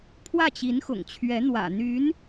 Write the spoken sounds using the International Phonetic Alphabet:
pʰ w ä˥˩ t͡ɕ i˧˥ n x ʊ̰˨˩ ŋ t͡ɕʰ ɥ ɛ˧˥ n̪ w ä̰˨˩ n̪ y˧˥ n

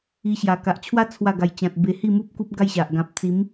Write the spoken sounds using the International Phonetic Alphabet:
i˧ ɕ j a˨˩ k a˨ ʔ t͡ɕʰ w a˦ t͡sʰ w a˥˧ ɡ a˧ j t͡ɕ ã˨ t̚ b e˧ h i˥˧ m u˦ p̚ k u˦ p̚ ɡ a˥˧ j ɕ a˨ ʔ ɡ ã˨ p̚ t͡s i˨˦ m

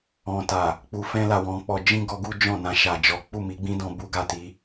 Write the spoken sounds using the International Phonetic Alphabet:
ɔ̃˨ t a˨ | k͡p u˨ f ɛ̃˧ l a˨ w ɔ̃˨˦ k͡p ɔ˧ d͡ʒ ĩ˦ ɡ ɔ˧ ɡ u˦ d͡ʒ ɔ̃˦˨ n ã˧ ʃ a˨ d͡ʒ ɔ˨˦ k͡p u˦˨ m i˨˦ ɡ͡b ĩ˦ d ɔ̃˧ b u˦ ɡ a˦˨ t i˨˦

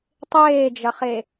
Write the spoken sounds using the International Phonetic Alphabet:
tˤ eː d͡ʒ ɐ χ e

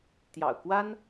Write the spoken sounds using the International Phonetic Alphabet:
t̪ j ɑ̰˨˩ ʊ̯ k w a˥ n

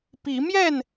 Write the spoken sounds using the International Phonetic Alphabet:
p i˨˦ m j ɛ˥˨ n

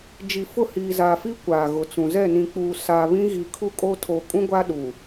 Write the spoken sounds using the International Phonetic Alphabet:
d͡ʒ i˨ f ʊ˦˨ h iː˨ z a˨ f i˦ kʷ a˨ ɣ ʊ˨ t͡s ũ˨ z ɛ˦˨ n ĩ˨ k͡p uː˨ s aː˨ β ĩ˦ ɣ iː˨ kʰ u˦ kʼ o˦ tʰ oː˨ kʼ ũ˦ ɡʷ a˦ ɗ u˨

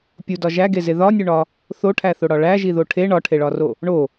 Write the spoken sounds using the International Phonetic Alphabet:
pʲ u d ɒ ʒ æ ɡ e z e ð ɒ nʲ u ɳ ɒ | θ o ʈʰ æ θ o ɽ ɒ ɭ æ ʒ i ð o ʈʰ e ɳ ɒ ʈʰ e ɭ ɒ r o | ɳ o

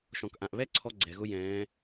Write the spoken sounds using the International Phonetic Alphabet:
ʃ ɔ̃˩ k ʔ ã˩ ʔ β ɛ˥ ǀʰ ɔ˧ ɡ͡ǀ ɛ˩ ɣ ʊ˧ j ɛ̃ː˩˧

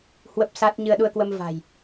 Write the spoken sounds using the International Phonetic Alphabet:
h w ə˦˥ p̚ s a˦˥ t̚ ɲ ɨ˧ ə̯ ɗ u˧ ə̯ k w ə˧ m v a̤˨˩ j

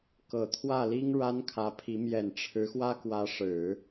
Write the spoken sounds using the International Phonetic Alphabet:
k ɤ˨˩ t̪ʰ w ä˥˩ l i˥ ŋ ɻ a˥ n kʰ ä˧˥ pʰ i˧˥ m j ɛ˨˩ n ʈ͡ʂʰ ɻ̩˧˥ x w ä˥ k w ä˧˥ ʂ ɻ̩˨˩˦

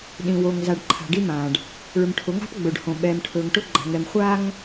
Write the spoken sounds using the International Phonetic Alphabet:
ɗ ĩ˨ w o˨ ŋ z a˨ ɖ ǃʰ a̤˨ ɖ i˦ m ãː˨ ɖ | ɭ ɵ˨ m ʈʰ ʊ˨˦ ŋ a̤˦ p ɡ͡b ɵ˨ ɖ h õ˨ ɓ ɛː˨ m ʈʰ ɵː˨ ŋ ʈ ʊ˦ ɡ͡ǃ a̤˨ ŋ ɛ˨ m χʷ aː˦ ŋ

